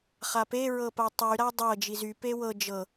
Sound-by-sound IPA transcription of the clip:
χ a p e ɹ ɤ p a tˤ y ɾ a dˤ ɤ d͡ʒ i z y p e w ɤ d͡ʒ ɤ

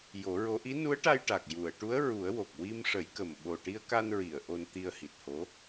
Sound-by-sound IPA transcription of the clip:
j o˨˩˦ ɹ o˧˥ ʔ i˧˥ n u˧˥ ə̯ ʈ a˧ j ʈ a˨˩ k̚ j u˨˩˨ ə̯ ʈ u˧˥ ə̯ ɹ u˨˩˦ ə̯ w o˨˩ k̚ w i˧ m ʂ ə˨˩˦ j k ə˨˩ m ɓ o˨˩ ʈ i˧ ə̯ k a˧ n ɹ i˨˩˨ ə̯ ʔ o˧ n t̪ i˧ ə̯ h i˨˩ t̚ h o˧˥

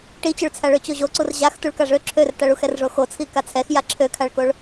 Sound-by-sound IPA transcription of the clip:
ʈ i t͡ɕ ø ɭ t͡sʰ a ɭ ø t͡ɕ o ʑ o ǀ u r ʑ a x t u ɭ k a ʐ ø ǁʰ ø r t a ɭ u x ɛ r ʐ o x o t͡sʰ i k a t͡sʰ ɛ x j a ǁʰ ø kʰ a ɭ k o ɭ

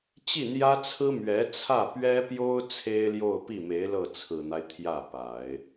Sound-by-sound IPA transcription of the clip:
t͡ɕ i˥˩ n̪ j ä˥ t͡sʰ ɹ̩˥ m ɥ ɛ˧˥ t͡sʰ ä˥˩ p ɥ ɛ˥ p j o˥ ʊ̯ t͡sʰ e˥ ɪ̯ l j o˥˧ ʊ̯ p i˥˩ m e˧˥ ɪ̯ l ɤ˥˩ t͡sʰ ɹ̩˨˩ n̪ a˦ ɪ̯ t̪ʰ j ä˥˩ p a˨˩˦ ɪ̯

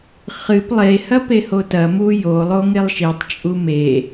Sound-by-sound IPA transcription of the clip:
χ ɨ p lˠ e h ɐ p e h o t ɐ m u j o lˠ o ŋ e lˠ ʃ i tˤ t͡ʃʼ u m e

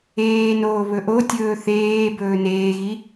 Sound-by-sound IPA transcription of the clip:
eː n oː β ɵ ʔ o tʲ ɵː θ eː b ɵː n eː ɣ i

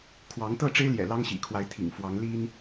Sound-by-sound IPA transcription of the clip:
kʰ w ɑ˨˦ ŋ t̪ ɤ˥˨ ʈ͡ʂ e˦ ɪ̯ l j ɛ̰˨˩ l ɑ˦ ŋ ɕ ḭ˨˩ kʰ w a˨˦ ɪ̯ t̪ʰ ḭ˨˩ ŋ f w ɑ˨˦ ŋ l i˦ n

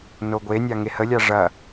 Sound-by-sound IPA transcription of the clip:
n o ɡʷ e nʲ a ŋ e h ə lʲ a ʐ ɐ

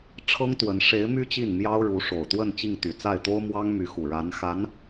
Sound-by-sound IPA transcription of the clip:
ʈ͡ʂʰ ɤ˥ ŋ t̪ w ə˧˥ n ʂ e˧˥ ɪ̯ m y˥ t͡ɕ i˥˩ n m j ɑ˥ ʊ̯ ɻ u˧˥ ʂ o˨˩ ʊ̯ t̪ w ə˥˧ n t͡ɕ i˥˩ ŋ t̪ y˨˩ t͡s a˥˩ ɪ̯ t̪ o˥ ʊ̯ m w ɑ˥ ŋ m y˧˥ x u˨˩ ɻ a˧˥ n x a˧˥ n

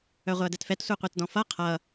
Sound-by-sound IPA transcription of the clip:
œ ʁʷ ɛ ɐ̯ d ɛ t f ɛ t sʷ e qʷ e t d ɔ̃ f ʌ qʰ ʌ

